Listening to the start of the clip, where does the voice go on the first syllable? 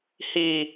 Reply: low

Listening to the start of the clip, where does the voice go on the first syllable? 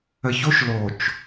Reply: low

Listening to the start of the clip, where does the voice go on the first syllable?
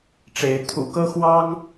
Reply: rising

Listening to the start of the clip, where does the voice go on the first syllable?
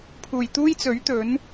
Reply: low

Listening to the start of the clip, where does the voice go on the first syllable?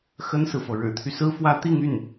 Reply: high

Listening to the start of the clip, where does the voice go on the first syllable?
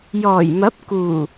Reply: low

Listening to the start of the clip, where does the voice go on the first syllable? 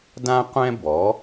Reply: high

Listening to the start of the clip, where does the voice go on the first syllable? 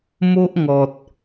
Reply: high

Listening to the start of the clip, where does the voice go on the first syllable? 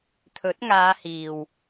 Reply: rising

